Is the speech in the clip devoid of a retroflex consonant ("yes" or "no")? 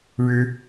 no